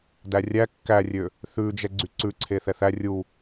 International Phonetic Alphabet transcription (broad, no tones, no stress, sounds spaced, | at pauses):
d æ rʲ æ kː æ rʲ ø | θ ʉ d͡ʒ ɛ ɡ͡ǀ y ǀ ʉ ǀʰ e θ ɛ θ æ rʲ u